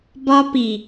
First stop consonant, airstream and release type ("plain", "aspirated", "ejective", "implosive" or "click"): plain